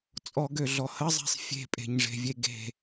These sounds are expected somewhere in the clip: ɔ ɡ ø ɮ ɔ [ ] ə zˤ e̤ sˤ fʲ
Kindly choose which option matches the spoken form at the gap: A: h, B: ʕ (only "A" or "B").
A